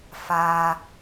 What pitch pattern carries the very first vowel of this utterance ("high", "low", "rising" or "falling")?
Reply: high